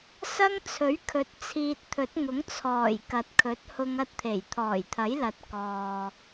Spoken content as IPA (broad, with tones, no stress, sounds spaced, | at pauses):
s ɐ˥ ŋ t͡sʰ ɵ˨˥ ɥ kʰ ɵ˨˥ t̚ t͡sʰ iː˧ t̚ t̪ʰ ɵ˨˥ t̚ ŋ ʊ˨˥ ŋ t͡sʰ ɔː˨˩ j k ɐ˨ t̚ kʰ ɵ˨˥ t̚ h ʊ˧ ŋ ɐ˥ t̚ t̪ʰ e˨˩ j t̪ʰ ɔː˨˩ j t̪ʰ ɐ˨˥ j l ɐ˨˥ t̚ k ɔː˨